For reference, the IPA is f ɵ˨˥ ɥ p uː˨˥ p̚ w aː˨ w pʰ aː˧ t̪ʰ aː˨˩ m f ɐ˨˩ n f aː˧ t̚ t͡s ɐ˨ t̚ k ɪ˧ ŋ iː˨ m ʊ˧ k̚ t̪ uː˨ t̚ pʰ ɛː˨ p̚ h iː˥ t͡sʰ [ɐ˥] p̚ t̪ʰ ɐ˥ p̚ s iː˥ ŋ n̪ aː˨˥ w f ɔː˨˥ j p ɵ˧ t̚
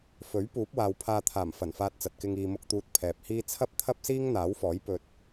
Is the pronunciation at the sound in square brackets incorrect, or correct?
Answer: correct